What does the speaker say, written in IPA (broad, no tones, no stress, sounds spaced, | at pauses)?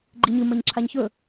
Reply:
ɡ͡ǃ i ɲ ɨ m ɐ ɲ ǁʰ a ɲ ç ɵ